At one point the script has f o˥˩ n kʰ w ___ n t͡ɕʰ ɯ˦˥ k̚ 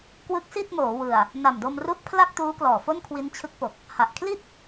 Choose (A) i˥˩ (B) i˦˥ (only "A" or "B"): B